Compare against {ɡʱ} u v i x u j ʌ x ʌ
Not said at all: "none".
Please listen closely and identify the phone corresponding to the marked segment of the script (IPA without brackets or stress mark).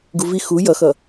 ɡ